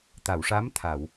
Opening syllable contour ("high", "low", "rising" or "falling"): low